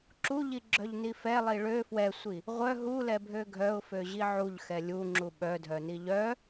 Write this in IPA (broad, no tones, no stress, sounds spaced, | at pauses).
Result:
ǁ u ʎ i ɡ͡ǁ œ ʎ n i f ɛ lˠ i ɭ ø f w ɛ sʷ i | ʁʷ œ ɦ u l ɛ bʱ ø ɡʱ œ ʊ̯ f ø ʑ i ʕ u ʎ x ɛ lʲ u ŋ͡ǁ u ɓ œ dʱ œ n i ʎ œ